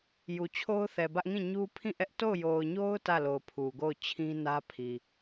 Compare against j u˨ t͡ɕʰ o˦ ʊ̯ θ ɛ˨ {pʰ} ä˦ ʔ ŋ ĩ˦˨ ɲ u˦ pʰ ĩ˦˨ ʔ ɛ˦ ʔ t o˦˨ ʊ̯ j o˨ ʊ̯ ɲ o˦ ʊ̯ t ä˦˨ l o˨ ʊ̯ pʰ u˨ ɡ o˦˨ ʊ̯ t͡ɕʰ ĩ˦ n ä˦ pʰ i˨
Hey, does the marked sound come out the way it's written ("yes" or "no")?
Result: no